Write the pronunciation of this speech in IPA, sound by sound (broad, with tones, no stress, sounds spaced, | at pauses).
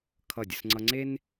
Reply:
kʰ ʌ˦˨ dʲ ə˦ s ŋ͡ǀ ʌ˦ ŋ͡ǀ e˦ n